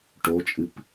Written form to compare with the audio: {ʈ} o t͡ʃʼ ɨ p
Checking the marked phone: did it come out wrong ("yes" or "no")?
no